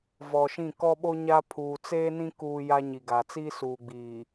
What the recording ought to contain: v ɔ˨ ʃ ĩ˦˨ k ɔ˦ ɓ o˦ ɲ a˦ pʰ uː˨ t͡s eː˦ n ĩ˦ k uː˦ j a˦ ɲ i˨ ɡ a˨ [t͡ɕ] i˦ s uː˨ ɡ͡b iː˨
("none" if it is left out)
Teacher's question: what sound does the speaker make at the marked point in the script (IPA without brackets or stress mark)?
t͡s